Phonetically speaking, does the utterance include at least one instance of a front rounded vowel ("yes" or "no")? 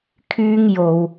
yes